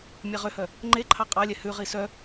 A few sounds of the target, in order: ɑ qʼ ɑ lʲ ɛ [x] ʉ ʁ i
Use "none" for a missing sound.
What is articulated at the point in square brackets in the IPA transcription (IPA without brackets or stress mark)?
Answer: h